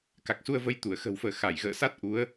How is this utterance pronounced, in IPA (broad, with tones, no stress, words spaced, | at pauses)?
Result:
ka˨˩k̚su˧ə̯və˧j t̪u˧˩ə̯ xə̤˨˩wfəː˧˩ xa˧˩jɣə̰ː˧˨sa˦˥t̚ ʔu˨˦ə̯